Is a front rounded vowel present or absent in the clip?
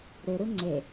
present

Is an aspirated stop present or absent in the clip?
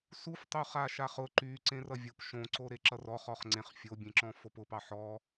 absent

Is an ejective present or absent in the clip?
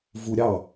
absent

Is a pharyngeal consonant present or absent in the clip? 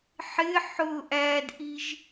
present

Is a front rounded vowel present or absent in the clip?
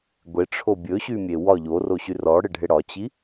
present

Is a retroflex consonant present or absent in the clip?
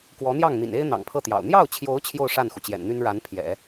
present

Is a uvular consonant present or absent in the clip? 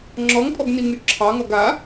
absent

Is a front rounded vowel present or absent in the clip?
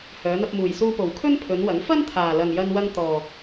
present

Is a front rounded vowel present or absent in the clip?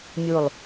absent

